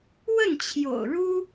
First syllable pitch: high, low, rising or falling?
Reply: falling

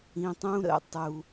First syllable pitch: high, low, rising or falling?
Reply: low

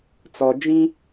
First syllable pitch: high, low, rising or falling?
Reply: low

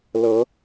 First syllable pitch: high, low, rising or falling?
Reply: rising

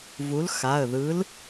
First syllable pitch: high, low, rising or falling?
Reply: rising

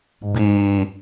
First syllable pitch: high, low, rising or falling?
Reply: low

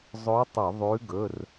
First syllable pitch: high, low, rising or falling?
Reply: rising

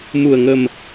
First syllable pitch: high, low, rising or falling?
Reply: low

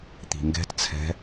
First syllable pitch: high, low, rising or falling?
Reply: low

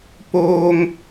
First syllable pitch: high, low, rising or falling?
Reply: high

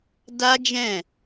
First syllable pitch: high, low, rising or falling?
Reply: high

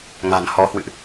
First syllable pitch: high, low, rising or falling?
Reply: low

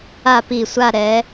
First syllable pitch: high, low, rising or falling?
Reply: falling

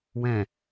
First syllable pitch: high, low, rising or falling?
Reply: low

